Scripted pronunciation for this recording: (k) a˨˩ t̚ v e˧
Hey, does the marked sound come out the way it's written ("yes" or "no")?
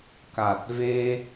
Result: yes